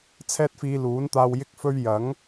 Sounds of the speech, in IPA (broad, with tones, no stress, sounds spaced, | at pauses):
t͡sʰ ɛː˥ t̚ f iː˧ l uː˨˥ n t̪ aː˧ w j ɪ˥ k̚ f ɵ˥ ɥ j ɐ˨˥ ŋ